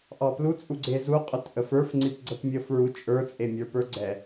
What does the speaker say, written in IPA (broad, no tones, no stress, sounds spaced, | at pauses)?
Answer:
ʔ ɑ p l u t͡sʼ u ɡ͡ǀ e z u qʼ ɵ t ʔ ə f ə˞ f ŋ͡ǀ i p ɡ͡ǀ ə p mʲ ə f ɹ u t͡ʃʼ ə˞ t͡sʼ e mʲ ə˞ p ə˞ ɡ͡ǀ ɛ